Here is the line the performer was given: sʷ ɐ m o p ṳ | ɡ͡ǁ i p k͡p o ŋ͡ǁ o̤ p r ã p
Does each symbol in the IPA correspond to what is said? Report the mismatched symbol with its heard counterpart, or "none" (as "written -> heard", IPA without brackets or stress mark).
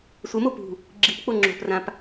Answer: none